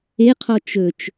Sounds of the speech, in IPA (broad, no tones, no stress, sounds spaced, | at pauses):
e qʰ ɔ t͡ʃ ɵ t͡ʃ